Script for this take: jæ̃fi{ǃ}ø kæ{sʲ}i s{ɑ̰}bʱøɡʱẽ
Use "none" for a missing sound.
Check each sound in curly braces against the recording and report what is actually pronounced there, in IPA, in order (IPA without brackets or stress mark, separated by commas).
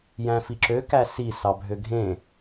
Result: ǁ, s, ɑ